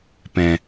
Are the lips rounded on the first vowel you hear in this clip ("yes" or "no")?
no